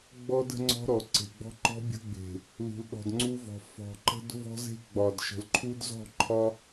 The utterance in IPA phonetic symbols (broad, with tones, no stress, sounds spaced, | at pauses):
ɡ͡b ɔ˦ d ə̤˦ ŋ͡ǀ ɔ̤˦ ɾ ɔ˨ ǀ e̤˨ ɡ͡b ɔ̤˦ ǃ ɔ̤˦ bʲ ə̤˦ ɡ͡b e̤˨ | l ṳ˨ l ɗ ɔ̤˨ d ŋ͡ǀ u˦ v ɔ̤˨ f ɔ̤˨ ǃ ə̤˦ d v ɔ̤˦ z e̤˦ ɡ͡b ɒ˨ d ʃ ə̤˨ l ǃʰ u˦ d z ɔ̤˦˨ ǃʰ ɒ˦